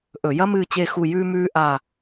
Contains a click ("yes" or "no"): no